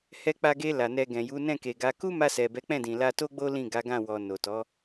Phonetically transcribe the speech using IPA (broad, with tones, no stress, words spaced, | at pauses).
hɛ˧k͡pa˧ɡe˧ la˨nɛ˧ɡɛ̃˨ ju˨˦ nɛ̃˦˨ke˨ɡa˨˦ ku˦ma˧ sɛ˨bɛ˨˦k͡pɛ̃˦˨dĩ˨ la˧to˦ɡ͡bo˦ lĩ˦˨ɡa˨˦ɡã˦˨ wɔ˨ no˨tɔ˨˦